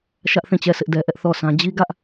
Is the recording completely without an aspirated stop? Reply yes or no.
yes